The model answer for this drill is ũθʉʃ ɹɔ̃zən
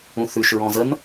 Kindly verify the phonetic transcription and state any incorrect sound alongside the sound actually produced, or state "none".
none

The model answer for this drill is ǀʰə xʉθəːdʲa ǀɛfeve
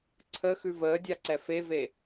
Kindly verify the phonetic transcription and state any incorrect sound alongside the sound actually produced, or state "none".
θ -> v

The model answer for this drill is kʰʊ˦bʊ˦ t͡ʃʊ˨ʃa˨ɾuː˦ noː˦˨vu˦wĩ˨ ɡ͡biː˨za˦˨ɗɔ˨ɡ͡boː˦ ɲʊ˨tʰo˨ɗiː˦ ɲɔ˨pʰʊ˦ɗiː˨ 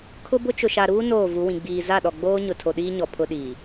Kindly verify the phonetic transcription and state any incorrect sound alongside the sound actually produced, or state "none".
u˦ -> u˨˦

